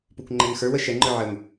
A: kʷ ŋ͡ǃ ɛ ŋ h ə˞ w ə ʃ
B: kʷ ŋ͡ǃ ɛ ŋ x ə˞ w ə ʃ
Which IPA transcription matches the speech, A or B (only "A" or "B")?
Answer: B